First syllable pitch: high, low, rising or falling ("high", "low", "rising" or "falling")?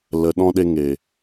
low